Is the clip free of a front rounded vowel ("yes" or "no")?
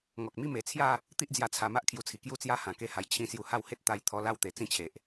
yes